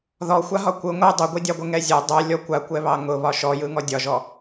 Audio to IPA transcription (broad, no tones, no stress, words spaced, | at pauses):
ðɔxʷaɦɒ kʷɯ ŋʷɯ dˤʊɡʷidʲɑɡʷə ŋɛzʲɛ dˤɛ lʲɔkʷakʷɛβɑ ŋʊ βɒʃɔjɯŋɔ dʲɒʒɔ